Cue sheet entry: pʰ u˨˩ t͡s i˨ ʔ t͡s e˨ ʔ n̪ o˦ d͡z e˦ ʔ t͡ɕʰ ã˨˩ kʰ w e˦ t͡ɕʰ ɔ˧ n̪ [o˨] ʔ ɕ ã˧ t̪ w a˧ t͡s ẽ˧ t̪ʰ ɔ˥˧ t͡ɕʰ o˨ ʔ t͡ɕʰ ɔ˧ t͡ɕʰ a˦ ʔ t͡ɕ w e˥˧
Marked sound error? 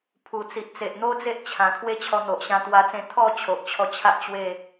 no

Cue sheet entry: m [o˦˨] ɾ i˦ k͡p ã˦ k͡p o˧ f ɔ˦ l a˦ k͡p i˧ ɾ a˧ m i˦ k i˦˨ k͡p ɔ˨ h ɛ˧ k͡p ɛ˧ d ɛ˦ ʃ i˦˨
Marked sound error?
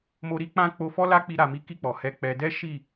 yes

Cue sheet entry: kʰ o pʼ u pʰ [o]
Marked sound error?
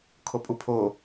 no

